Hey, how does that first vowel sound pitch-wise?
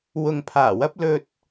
low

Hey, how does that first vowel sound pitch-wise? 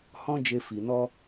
high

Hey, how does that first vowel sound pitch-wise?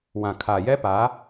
low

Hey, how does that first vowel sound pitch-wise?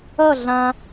falling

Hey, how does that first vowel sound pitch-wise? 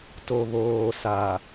low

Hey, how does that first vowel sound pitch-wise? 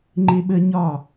high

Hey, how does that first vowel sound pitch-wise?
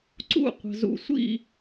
falling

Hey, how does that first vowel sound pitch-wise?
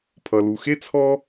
low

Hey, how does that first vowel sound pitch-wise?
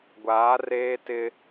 rising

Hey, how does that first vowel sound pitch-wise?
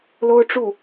high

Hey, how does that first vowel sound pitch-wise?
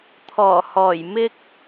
low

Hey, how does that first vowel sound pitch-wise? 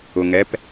low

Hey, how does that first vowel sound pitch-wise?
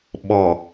low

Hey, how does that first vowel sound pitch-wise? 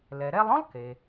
low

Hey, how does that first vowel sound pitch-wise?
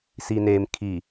low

